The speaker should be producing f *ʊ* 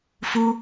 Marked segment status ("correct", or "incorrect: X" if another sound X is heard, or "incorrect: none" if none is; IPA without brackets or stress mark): incorrect: u